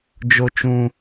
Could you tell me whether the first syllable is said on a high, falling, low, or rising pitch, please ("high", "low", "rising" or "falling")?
high